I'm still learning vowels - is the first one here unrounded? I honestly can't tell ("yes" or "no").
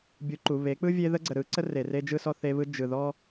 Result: no